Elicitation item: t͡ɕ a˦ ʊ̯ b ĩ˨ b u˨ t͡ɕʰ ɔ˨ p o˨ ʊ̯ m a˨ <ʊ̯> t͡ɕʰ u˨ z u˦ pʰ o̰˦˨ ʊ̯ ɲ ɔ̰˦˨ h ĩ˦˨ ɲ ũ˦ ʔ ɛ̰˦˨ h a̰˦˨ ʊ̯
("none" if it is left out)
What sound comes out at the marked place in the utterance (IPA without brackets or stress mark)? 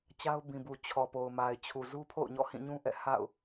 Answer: ɪ̯